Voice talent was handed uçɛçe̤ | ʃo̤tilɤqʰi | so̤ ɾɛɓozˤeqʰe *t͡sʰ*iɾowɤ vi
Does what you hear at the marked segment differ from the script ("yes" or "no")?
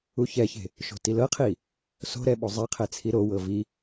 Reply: no